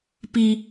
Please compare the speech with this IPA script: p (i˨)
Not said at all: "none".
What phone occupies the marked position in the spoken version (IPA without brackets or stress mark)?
i˨